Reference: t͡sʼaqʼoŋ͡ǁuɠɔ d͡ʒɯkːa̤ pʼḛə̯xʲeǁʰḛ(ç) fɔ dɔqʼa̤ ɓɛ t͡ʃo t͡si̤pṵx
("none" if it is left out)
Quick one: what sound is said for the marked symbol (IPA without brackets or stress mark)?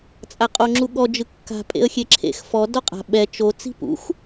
x